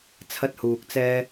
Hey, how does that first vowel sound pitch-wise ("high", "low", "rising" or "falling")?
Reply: high